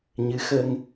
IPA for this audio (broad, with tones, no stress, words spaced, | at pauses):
ɲɨ˧˥ xə˧ŋ